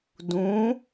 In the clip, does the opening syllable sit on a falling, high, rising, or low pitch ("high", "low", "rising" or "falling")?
rising